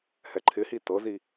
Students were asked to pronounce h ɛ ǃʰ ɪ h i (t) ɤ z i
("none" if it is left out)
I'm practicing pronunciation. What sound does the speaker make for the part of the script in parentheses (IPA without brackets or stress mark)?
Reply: t